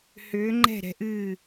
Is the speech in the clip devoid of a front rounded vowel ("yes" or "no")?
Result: no